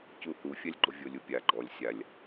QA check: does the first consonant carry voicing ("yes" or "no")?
no